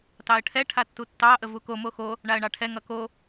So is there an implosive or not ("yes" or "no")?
no